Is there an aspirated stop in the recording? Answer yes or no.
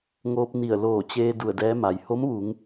no